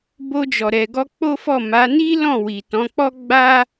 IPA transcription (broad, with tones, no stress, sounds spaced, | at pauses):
b o˧ d͡ʒ ɔ˨ ɾ ɛ˨ ɡ ɔ˧ k͡p o˦ f ɔ˦˨ m a˨˦ n i˦ l ɔ̃˦˨ w i˨ t ɔ̃˨˦ k͡p ɔ˦ ɡ͡b a˦